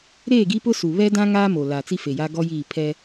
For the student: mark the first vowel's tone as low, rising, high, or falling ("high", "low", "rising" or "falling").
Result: falling